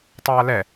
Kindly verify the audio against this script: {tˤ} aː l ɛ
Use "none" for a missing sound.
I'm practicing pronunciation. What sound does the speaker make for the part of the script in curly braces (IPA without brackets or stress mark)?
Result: tˤ